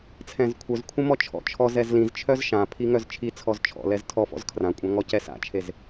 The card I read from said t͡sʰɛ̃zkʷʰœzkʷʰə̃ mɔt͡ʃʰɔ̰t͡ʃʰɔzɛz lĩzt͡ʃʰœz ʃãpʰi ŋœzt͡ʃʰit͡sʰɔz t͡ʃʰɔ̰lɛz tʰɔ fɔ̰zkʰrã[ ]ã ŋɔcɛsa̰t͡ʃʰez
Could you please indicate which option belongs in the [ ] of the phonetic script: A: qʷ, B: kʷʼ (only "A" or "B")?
B